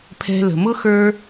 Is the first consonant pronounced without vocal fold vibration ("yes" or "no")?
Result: yes